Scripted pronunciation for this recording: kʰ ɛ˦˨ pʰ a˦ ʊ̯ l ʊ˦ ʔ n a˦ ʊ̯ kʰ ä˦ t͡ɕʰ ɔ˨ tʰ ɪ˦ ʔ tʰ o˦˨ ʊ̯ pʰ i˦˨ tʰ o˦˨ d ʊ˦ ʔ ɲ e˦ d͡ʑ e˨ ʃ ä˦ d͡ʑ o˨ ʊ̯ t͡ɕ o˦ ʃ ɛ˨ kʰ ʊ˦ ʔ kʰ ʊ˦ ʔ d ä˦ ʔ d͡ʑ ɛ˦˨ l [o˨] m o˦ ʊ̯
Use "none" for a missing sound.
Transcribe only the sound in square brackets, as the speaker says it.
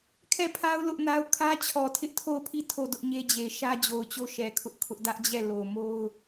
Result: o˨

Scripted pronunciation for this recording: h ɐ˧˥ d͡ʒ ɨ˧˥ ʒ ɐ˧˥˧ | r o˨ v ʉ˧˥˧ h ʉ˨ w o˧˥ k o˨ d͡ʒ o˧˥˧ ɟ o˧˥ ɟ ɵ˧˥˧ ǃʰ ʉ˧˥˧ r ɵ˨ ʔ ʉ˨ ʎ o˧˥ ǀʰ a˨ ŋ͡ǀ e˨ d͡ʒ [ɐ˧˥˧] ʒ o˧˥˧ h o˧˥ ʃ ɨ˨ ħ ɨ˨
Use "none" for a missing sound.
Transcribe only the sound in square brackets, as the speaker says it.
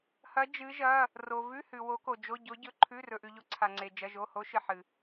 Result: ɐ˧˥˧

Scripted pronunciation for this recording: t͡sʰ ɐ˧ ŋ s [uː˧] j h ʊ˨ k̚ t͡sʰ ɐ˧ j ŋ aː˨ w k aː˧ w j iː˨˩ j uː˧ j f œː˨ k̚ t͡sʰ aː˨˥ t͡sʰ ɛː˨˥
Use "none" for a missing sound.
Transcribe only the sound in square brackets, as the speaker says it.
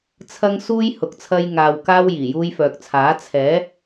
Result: uː˧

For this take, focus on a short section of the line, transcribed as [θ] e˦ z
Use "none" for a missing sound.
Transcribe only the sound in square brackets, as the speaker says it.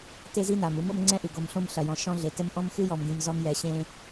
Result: t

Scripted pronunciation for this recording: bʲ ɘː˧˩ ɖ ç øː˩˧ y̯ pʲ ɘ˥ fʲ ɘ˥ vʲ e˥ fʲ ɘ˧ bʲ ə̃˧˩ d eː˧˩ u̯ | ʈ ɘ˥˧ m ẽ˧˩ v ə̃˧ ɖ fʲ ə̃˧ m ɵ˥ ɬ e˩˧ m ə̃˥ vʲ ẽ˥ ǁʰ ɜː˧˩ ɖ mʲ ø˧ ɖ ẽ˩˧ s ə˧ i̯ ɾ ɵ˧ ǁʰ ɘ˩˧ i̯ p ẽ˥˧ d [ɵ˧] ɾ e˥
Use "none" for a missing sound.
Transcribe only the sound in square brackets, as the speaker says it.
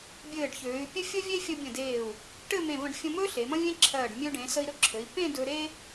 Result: ɵ˧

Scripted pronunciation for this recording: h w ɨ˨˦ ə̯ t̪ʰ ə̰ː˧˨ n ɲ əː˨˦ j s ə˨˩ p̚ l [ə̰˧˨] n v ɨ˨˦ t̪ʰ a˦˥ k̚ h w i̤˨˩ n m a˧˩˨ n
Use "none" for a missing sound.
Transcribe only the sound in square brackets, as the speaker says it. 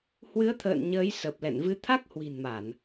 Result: ɛ̰˧˨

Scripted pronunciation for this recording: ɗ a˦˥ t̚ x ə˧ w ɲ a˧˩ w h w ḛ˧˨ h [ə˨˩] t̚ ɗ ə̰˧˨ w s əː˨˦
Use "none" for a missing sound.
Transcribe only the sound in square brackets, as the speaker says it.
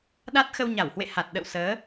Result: a˨˩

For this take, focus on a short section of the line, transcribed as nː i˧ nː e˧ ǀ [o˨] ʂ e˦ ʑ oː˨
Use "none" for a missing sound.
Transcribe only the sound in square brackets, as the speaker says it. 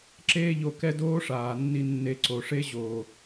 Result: o˨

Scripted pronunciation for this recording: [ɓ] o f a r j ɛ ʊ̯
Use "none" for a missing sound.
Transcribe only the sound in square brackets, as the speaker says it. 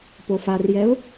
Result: p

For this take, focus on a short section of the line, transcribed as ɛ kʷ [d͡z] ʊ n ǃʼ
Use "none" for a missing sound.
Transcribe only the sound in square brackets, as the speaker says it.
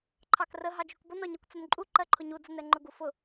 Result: t͡s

